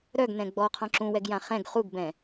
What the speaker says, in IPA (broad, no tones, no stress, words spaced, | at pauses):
ɾœɡnɛ̃ ɡ͡bɔqʰɔ̃ ǁũwɛɡjã χɛ̃ɡ χuɡbɛ̃